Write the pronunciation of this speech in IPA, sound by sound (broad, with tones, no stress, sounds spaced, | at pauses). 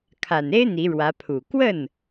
kʰ a˨˩ n e˥ ɪ̯ n̪ i˧˥ ɻ w ä˧˥ pʰ u˨˩ k w ə˥˩ n